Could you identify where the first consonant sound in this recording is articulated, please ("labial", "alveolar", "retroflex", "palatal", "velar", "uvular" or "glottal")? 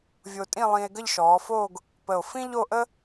labial